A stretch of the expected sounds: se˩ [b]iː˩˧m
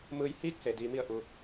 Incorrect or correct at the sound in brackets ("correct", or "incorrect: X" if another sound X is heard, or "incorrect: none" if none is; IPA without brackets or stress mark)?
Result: incorrect: d